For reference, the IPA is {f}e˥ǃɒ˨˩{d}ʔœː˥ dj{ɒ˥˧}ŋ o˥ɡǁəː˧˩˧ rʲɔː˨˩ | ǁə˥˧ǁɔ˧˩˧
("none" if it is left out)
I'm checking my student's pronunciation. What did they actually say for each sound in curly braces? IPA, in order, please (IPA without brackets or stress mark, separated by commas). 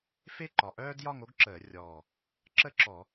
f, none, ɒ˥˧